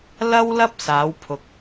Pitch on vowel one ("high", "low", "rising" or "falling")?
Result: high